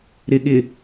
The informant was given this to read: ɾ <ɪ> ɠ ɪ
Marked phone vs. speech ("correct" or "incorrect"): correct